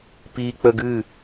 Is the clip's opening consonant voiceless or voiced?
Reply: voiceless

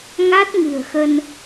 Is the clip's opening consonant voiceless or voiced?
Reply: voiced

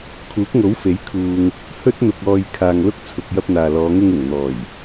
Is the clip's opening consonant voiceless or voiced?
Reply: voiceless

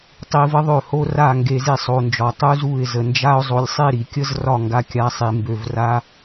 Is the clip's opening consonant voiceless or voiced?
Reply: voiceless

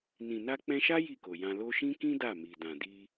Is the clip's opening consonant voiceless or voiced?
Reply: voiced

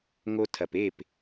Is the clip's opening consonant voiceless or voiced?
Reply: voiced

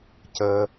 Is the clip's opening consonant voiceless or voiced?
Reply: voiceless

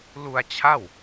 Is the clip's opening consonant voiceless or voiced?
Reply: voiced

